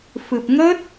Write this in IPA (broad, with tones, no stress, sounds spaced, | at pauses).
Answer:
f ɨ˨˩ p̚ ŋ ə˦˥ t̚